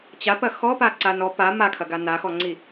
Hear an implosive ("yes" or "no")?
no